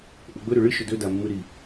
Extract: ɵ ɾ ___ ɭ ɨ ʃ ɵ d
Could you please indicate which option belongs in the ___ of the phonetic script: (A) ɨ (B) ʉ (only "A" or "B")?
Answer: B